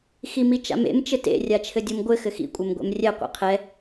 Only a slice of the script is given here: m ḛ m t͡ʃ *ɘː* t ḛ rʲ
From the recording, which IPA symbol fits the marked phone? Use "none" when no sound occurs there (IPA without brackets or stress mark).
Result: ɘ